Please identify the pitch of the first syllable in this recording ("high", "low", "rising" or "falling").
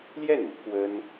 falling